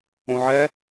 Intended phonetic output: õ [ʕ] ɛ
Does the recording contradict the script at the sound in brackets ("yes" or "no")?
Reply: no